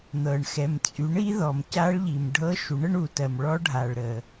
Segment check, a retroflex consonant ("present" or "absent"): present